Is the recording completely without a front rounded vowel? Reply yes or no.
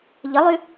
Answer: no